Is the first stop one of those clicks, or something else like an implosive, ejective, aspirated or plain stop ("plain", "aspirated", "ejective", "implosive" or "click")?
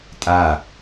ejective